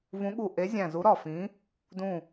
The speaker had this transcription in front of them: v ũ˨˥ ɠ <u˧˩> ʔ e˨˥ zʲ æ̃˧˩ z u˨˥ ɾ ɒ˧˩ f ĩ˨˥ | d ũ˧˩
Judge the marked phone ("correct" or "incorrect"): correct